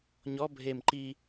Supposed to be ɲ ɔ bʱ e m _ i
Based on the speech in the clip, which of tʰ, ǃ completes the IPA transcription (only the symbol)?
ǃ